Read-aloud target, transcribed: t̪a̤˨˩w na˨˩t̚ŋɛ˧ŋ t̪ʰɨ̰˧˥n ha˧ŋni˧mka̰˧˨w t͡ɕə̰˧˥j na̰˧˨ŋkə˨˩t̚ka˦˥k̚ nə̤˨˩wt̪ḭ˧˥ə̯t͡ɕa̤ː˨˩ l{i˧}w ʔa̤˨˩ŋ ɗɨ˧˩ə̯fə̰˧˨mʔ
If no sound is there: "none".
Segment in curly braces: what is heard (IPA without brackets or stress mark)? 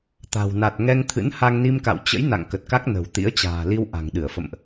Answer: i˧